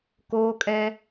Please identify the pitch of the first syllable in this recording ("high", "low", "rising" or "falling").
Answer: high